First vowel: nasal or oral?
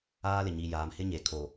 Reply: oral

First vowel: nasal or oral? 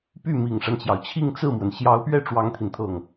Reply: oral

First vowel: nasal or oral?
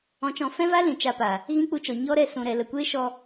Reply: nasal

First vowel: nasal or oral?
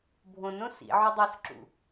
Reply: nasal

